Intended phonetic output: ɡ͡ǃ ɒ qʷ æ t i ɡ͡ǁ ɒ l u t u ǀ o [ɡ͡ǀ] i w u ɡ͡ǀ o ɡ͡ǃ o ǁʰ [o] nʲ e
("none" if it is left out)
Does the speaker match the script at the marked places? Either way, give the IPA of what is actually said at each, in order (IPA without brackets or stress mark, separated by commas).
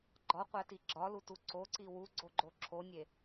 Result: ǀ, o